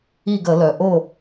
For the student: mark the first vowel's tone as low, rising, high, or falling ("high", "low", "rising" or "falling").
falling